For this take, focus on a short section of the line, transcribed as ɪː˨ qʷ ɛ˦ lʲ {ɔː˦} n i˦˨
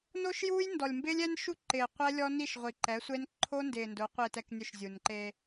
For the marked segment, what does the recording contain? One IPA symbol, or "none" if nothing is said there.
ɔ˦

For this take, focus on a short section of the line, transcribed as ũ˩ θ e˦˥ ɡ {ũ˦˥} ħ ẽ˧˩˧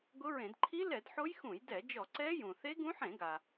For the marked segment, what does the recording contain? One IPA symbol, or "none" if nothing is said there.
ũ˦˥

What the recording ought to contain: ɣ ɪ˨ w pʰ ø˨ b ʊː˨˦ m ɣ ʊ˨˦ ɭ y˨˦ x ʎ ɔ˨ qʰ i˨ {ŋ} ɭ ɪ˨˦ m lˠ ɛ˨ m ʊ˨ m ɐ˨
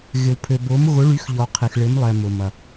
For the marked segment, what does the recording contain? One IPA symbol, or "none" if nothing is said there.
x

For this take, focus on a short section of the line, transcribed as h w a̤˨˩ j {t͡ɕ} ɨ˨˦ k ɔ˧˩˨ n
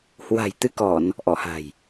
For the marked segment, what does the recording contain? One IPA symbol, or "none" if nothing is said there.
t̪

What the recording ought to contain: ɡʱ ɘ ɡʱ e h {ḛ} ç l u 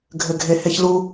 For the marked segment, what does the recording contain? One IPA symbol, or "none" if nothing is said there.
e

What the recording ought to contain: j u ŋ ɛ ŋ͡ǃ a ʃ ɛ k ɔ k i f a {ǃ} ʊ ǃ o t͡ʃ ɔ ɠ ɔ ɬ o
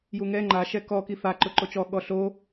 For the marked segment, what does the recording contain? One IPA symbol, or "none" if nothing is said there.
ǃ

